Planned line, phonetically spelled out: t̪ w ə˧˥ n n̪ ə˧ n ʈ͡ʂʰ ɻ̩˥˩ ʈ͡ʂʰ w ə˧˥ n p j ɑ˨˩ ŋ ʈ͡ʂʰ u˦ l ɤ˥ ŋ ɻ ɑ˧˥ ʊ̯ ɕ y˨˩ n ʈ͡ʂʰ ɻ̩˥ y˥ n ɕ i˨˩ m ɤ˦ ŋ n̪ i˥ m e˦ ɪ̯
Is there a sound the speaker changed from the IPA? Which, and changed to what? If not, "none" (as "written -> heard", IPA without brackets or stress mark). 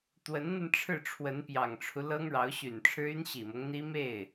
e˦ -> e˥˩